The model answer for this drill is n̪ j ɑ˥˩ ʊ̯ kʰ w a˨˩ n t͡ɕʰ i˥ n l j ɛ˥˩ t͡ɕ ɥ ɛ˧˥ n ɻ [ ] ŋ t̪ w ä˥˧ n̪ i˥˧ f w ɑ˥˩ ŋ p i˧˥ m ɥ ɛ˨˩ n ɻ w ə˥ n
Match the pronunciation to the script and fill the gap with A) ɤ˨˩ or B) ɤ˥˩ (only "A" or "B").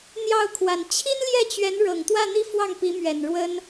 A